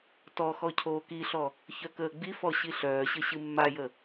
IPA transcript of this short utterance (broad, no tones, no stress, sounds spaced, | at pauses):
t ɔ x ɔ cʰ oː k i ɬ ɔ | ç œ k əː ɡ͡b i f ɔ ɕ i ɬ œː ɕ ɘ ɕ ɨ mː a j ə